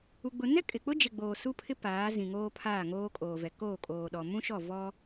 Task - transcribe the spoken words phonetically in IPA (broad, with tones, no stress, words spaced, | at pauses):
u˦ɡ͡bʊ˦ nɛ˦kʼɪ˨k͡pʊ˦d͡ʒɪ˨ ɡ͡boː˨su˦pʰɪ˦ paː˨˦zĩ˨ŋoː˦ pʰaː˦˨ŋoː˦kʼoː˨vɛ˨ koː˦˨kʼoː˨ɗɔ˨ mũ˦ʃɔ˦˨vɔ˦